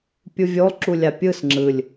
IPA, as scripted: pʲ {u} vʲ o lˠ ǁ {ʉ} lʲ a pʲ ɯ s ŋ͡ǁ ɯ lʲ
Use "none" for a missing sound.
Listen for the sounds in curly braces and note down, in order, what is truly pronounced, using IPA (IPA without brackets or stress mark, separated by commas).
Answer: u, u